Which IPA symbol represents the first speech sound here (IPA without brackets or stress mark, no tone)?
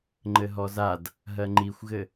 ŋ͡ǃ